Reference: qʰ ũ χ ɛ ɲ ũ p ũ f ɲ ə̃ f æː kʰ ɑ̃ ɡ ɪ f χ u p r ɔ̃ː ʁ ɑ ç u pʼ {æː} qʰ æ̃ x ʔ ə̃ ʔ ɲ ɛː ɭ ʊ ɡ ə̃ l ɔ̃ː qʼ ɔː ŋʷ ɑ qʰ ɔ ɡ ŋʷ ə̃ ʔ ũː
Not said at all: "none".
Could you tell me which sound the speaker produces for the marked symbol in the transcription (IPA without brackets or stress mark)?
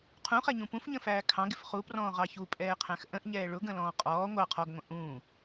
ɛː